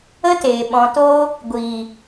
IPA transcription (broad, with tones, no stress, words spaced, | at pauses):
ə˦teː˨ ɓɔ̃˨toː˧ | ɡʷiː˨